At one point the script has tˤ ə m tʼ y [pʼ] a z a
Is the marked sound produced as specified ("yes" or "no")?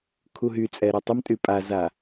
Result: yes